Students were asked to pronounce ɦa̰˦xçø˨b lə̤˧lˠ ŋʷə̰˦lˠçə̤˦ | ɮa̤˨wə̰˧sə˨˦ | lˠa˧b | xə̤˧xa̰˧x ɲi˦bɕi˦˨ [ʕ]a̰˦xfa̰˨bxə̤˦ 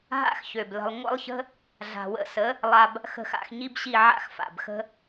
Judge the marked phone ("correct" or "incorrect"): correct